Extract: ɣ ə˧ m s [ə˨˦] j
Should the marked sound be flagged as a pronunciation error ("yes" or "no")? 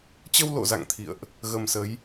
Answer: no